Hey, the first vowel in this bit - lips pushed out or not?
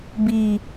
no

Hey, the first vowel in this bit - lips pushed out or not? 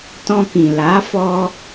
yes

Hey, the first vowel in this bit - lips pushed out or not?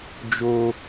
yes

